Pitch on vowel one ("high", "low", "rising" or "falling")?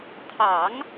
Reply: low